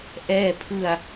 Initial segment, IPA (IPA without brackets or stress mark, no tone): ʔ